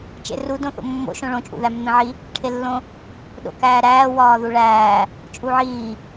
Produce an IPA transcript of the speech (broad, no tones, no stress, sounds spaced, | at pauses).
t͡ʃ ḛ r u d õ θ o̰ mː o̰ ʃ õ ɭ õ t͡ʃʼ ṵ ð æ mː ẽ ʕ i | ʈʰ e lː õ | ɗ o̰ k æː ɾ æː w ɒː ð u ɭ æː | t͡ʃʼ u ʕ iː